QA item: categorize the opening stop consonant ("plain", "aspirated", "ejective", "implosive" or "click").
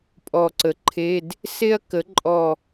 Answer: ejective